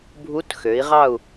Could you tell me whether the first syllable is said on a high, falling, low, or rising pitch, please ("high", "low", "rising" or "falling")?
rising